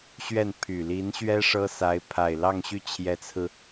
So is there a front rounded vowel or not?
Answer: yes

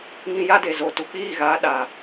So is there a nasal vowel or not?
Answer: yes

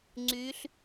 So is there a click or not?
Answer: yes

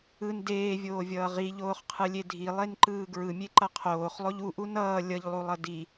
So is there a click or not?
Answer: yes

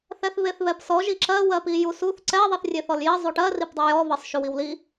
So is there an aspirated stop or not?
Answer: no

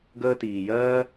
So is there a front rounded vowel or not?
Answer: no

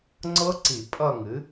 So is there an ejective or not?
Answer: yes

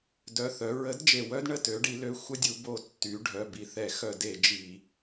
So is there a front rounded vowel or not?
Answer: yes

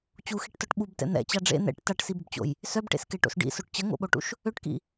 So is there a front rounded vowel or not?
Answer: yes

